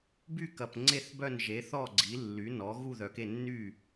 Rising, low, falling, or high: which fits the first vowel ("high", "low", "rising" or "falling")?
falling